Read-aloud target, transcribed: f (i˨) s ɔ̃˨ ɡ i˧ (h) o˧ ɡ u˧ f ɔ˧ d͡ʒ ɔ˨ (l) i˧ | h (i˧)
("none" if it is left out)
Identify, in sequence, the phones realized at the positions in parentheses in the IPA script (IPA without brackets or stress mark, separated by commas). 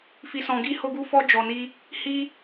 i˨, h, n, i˦